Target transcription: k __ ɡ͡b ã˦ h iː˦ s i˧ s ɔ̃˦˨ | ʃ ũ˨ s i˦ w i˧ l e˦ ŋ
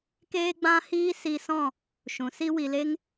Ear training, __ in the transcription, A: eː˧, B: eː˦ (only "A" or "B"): B